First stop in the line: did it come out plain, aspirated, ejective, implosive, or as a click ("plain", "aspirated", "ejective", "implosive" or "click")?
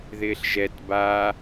plain